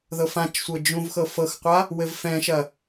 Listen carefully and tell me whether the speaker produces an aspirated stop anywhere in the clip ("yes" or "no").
no